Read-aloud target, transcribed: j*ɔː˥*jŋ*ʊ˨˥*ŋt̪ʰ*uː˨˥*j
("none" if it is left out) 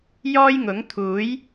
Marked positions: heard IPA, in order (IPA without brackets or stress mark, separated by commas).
ɔː˥, ʊ˨˥, uː˨˥